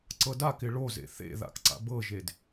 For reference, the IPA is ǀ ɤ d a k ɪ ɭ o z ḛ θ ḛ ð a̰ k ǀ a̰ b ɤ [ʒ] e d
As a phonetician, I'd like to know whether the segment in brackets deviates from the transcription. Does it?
no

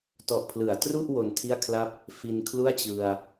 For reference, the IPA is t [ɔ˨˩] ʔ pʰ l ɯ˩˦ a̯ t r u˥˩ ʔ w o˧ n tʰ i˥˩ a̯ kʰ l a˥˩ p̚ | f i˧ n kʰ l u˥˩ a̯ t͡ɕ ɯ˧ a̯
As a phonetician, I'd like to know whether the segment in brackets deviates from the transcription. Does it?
no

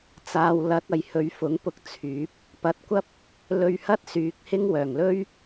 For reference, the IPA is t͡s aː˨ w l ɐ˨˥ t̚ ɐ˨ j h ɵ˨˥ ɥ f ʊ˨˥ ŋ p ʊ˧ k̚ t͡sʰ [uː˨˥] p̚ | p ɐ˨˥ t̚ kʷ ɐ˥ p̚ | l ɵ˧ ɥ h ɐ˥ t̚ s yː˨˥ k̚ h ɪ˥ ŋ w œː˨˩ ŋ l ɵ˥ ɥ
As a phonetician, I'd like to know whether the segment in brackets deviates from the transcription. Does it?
yes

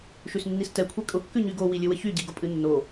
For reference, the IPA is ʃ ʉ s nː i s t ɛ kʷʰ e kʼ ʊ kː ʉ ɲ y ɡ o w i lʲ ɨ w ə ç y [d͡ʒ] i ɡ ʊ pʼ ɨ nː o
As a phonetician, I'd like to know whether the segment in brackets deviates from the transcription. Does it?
yes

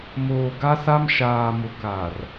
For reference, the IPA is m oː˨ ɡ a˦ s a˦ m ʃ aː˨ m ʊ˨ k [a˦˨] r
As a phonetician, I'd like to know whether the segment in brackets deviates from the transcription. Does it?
yes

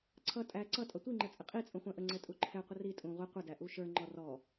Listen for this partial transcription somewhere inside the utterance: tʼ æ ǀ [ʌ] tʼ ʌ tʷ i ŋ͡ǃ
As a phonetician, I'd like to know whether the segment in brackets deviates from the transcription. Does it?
no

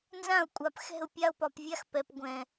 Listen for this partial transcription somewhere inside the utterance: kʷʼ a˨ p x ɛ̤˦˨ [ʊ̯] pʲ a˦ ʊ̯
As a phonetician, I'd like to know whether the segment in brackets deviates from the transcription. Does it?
no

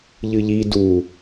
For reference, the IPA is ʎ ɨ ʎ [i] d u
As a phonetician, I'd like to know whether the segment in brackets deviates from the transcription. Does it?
no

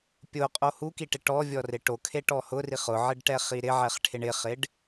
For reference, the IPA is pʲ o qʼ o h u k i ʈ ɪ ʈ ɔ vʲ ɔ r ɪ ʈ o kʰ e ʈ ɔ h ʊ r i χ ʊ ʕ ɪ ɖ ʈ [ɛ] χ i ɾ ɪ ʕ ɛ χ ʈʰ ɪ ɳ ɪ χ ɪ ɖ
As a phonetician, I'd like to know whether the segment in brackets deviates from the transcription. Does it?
no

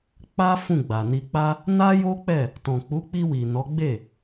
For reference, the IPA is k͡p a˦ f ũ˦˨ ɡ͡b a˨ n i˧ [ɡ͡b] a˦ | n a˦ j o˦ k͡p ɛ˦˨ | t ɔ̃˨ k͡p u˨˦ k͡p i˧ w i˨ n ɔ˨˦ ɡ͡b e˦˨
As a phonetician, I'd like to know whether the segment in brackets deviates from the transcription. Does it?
yes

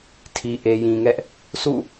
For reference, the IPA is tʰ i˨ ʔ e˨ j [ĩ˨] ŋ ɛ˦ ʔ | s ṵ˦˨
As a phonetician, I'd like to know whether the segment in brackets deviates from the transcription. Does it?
no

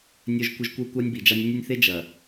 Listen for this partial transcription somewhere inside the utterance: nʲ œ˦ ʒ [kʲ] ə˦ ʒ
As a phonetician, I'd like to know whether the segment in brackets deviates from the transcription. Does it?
yes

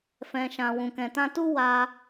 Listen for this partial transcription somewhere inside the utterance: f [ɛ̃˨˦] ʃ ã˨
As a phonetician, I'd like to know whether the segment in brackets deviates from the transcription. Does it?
yes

